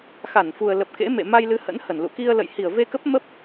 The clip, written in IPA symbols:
x a˧˩ n f u˨˩ ə̯ l ə˨˩ p̚ k ḛ˧˥ m ḛ˧˨ m a˧ j l ɨ˨˦ h ə̰˧˥ n h ə˧˩ n l ṵ˧˨ k i˧ ə̯ l ə̰˧˨ j h i˧˩ ə̯ v e˧ k ə˦˥ p̚ m ə˦˥ p̚

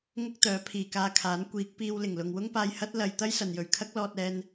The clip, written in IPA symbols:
ŋ ʊ˥ k̚ t̪ œː˨˥ pʰ iː˨ k aː˧ kʰ aː˨˥ n kʷ iː˨˥ k̚ p iː˧ w l ɪ˨˩ ŋ l ʊ˨ ŋ w ʊ˥ ŋ p aː˧ j h ɐ˥ t̚ l ɐ˧ j t̪ ɐ˥ j s ɐ˨ n j ɵ˨ ɥ kʰ ɐ˥ k̚ l ɔː˧ t̚ ɛː˧ n

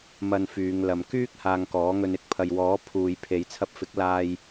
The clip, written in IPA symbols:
m ɐ˧ n f yː˨˧ ŋ l ɐ˨ m k yː˥ k̚ h aː˧ ŋ k ɔː˨˥ ŋ ɵ˧ n ɪ˨˥ k̚ pʰ ɐ˨ j w ɔː˨˥ pʰ uː˨ j pʰ e˨˧ j t͡sʰ ɐ˧ p̚ f ɪ˨˥ k̚ l aː˧ j

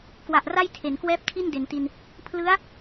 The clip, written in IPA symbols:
k w a˨˩ ʔ r a˥˩ j tʰ e˩˦ n k w ɛː˥˩ p̚ tʰ i˥˩ n d e˩˦ n t i˧ n | pʰ l ɯ˦˥ a̯

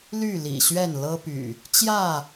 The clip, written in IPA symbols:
l y˥˨ l ḭ˨˩ ɕ ɥ ɛ˥˨ n l ɤ˦ p y̰˨˩ | t͡ɕ j ä˥˨

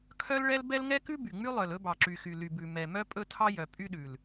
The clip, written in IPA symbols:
kʰ œ˦ l ɭ ɛ˦ l b ɛ˦ l ŋ ɛ˦ k ʉ˦ b y˨ ŋ͡m y˦ lˠ œ˨ l ɵ˦ b ɑ˨ ǁ y˨ x y˨ l y˨ b ʉ˨ m ɛ˨ m œ˦ pʼ ɵ˦ tʰ ɑ˦ j œ˨ pʼ y˦ ɗ ʉ˨ l

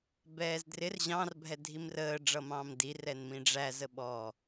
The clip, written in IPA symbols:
b ɛː z d r ɪ r ʑ ɑ̃ r bʱ ɛ dʱ i m r əː ɖ͡ʐ ʌ m ɑ̃ː m d i r ɛ n m ĩ ɖ͡ʐ æ z ə ɓ ɔ

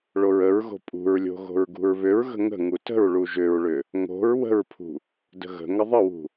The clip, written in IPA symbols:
ɭ o ɹ ə ɹ ɣ o̤ pʼ ṳ ɹ lʲ o̤ ɣ o̤ ɹ ɡ ṳ ɹ β ʏ ɹ ɣ ə̤ ŋ ə̤ ŋ u t ə̤ ɹ ɭ u ʒ ʏ ɹ ɭ ʏ | ŋ o̤ ɹ w ə̤ ɹ pʰ ṳ | d ə̤ ɣ ə̤ ŋ ə ðˤ ə w ṳ

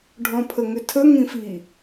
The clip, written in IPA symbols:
ɖʱ ɔ̃ pʰ ə ŋ ʏ tʰ ə ŋ ĩ f i

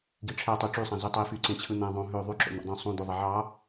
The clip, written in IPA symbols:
ɡ i ʈ͡ʂʰ æ tˤ y ʈ͡ʂ y sˤ æ̃ z y tˤ i f y ǀ ẽ t͡ɕʰ ɯ n̪ æ̃ ðˤ õ ɦ ø ðˤ y ǁ o̰ n̪ o̰ dˤ ũ sˤ ũ d̪ o ðˤ e ʕ ɑ

